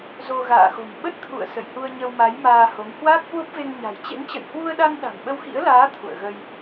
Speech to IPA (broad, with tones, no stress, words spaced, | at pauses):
zo˧ ɣa̰ː˧˨xo̤˨˩m ɓə˦˥t̚t̪ʰṵ˧˨ə̯ sə̰˧˨jhu˧ə̯ɲə˧wma˨˦j maː˧ho˨˦ŋ hwaː˦˥k̚hwo˦˥p̚ve˧ŋɲa̤˨˩j t͡ɕḛ˧˥ŋt͡ɕə̰˧˨jhwu˧ə̯ɗa˧ŋ ɗa̤˨˩mɓə˧wxḭ˧˥ə̯laː˨˦ t̪ʰṵ˧˨ə̯ɣə˧j